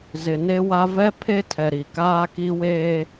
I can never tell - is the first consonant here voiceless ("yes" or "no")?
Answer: no